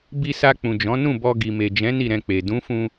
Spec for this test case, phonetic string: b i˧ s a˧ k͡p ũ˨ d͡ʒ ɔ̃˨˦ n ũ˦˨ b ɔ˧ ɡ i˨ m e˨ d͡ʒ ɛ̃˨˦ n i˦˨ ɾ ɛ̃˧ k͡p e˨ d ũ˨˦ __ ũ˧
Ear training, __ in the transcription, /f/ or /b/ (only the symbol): f